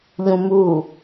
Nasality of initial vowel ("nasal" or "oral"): nasal